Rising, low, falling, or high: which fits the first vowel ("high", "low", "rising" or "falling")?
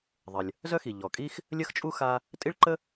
low